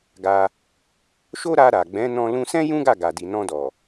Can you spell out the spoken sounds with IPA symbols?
ɡa˧ | ʃo˦ɾa˧ɾa˨ ɡ͡bɛ̃˨˦ nɔ̃˧ lũ˧sɛ̃˦ jũ˦ɡa˦˨ ɡa˨di˨ nɔ̃˧dɔ˨

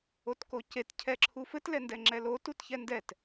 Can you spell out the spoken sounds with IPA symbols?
otkocet cʰɛǁʰufɘt lɛndɛŋ͡ǁɛlo tutçɛndɛt

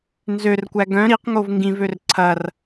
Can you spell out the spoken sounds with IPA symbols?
nzørkʷæ ɡœ̃ ɾiqŋov ŋɡĩvør ǀʰɐr

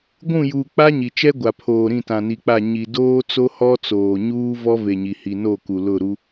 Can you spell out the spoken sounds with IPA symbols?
ɡʷũ˦˨juː˨ k͡pa˦ ɲi˨t͡ʃɛ˦ɡʷa˨pʰoː˨ ɾĩ˦˨tã˨ni˨k͡pa˦˨ ɲi˨doː˦t͡so˦ hɔ˦t͡soː˨ɲuː˦ vɔ˦ve˨ ɲi˨hi˨no˦˨ku˨ lʊ˦˨ɾu˦

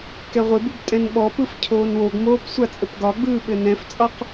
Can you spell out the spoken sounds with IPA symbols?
kɛʁʷɪbub tʼɛ̃nɓɔpɯf cʰoːnwoɡmoːp sʷat͡sʼɘpɡɒɡ͡bɯː ɓɘnɛ̃ft͡sʼɒq

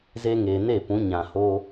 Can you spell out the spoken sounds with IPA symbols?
ze˦ŋeː˧ ne˦˨pũ˨˦ ɲã˧ho˦

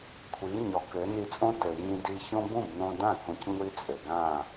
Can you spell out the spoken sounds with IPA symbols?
kʷʰi˩˥ɲɔ˩˥ kɘ˩˥ ni˧t͡sʼõ˥tɘ˩ jĩ˧di˧çõ˥ bũ˥˩bnõ˧dã˥˩ kõ˧cŋʷi˥t͡sʼɘ˩ɡã˥˩

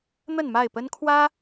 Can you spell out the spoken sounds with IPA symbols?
n̪ə˥˨nma˥˨ɪ̯pə˦nkʰwä˦

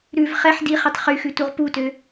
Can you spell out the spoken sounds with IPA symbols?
ɾʉv χɛħ diχitˤ χyxʉ tuʁputø

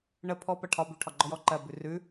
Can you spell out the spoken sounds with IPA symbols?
ɳə pʰɔ pɜʈʰɒ bʉ ʈʰɒɡ͡ǃɔjɔǃɜ bʉrʉ

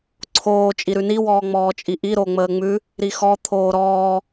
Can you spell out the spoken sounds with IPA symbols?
ǀʰoː t͡ʃʼiɾʉni wɔːŋ͡mɔːt͡ʃʼiʔi ɾoŋ͡məːŋ͡mʉ | ɾixɔ t̪ʰoːɾɔː

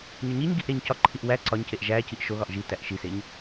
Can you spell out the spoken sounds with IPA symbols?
ɲɒɲiɲɡiʔ ɾeɲcɒǃʰiʔ wæ ǀɒɲceʔ ʒæːciʔ ʃoɣɒʔ ʒitæʔ ʃiseɲ

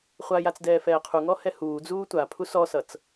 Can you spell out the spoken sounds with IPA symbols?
χʷajat͡s dɛːfɛːqʰuŋɔ hɛhuːd͡zuː tʷapʰu sɔsʌt͡s

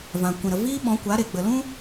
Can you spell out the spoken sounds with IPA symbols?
vã˨ kʷĩ˨ɾə˨ viː˦ɓɔ̃˨˦kʷa˨˦ɾe˨ ɡ͡bə˨lũ˦

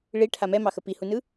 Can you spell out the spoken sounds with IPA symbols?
ɭiʈʰa mɛmɑxə pihunɯ

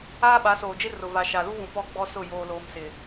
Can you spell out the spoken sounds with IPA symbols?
aː˦ɓa˨˦soː˨d͡ʒɪ˦ rʊ˨ va˨ʃa˨lu˦vũ˨ pɔ˦ɡ͡bɔ˦sʊ˦˨ joː˦loː˦m sɪ˨

